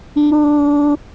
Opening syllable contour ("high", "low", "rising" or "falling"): high